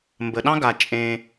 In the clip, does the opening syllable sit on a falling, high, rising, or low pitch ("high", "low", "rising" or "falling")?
low